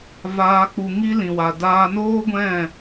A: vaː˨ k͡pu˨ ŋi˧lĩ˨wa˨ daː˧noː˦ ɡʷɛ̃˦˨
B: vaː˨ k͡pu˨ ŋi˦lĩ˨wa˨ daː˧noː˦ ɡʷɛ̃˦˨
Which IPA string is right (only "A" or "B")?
A